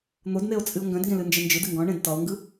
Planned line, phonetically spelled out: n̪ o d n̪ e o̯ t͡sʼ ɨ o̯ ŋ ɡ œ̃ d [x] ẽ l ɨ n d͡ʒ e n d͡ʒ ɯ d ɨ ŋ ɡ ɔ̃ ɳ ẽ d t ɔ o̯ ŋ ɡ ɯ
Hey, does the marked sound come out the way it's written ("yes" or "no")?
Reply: no